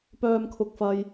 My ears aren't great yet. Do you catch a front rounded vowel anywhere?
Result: yes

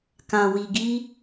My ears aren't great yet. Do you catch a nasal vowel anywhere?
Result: yes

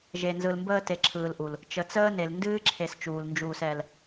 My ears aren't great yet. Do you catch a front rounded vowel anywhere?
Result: no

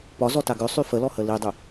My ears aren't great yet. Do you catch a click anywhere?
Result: no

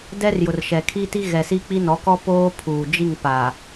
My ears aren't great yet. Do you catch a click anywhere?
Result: no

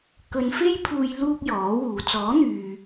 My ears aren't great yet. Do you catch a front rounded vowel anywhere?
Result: yes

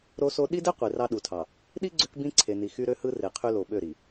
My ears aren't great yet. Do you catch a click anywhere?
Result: yes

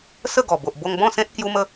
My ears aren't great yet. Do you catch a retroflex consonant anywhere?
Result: no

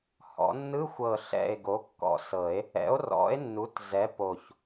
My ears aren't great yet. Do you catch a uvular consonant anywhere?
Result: no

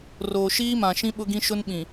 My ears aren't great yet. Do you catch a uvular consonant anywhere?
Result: no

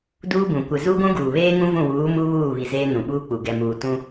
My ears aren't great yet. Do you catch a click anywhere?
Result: no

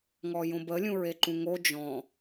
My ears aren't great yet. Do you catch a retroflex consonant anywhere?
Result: no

